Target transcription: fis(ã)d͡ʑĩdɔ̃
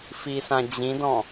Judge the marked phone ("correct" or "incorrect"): correct